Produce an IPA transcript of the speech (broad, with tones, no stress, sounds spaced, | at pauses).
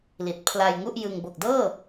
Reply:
l i˨˩ t̚ pʰ l a˧ j ŋ u˥˩ ʔ j ɯ˧ ŋ b o˨˩ k̚ d ɤː˥˩